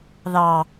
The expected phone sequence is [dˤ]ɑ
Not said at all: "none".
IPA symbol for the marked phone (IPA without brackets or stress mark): ð